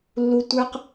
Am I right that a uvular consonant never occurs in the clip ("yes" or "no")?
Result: no